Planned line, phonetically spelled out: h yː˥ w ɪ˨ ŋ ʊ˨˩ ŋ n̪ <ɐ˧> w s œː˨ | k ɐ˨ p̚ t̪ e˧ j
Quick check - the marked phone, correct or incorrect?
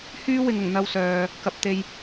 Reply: correct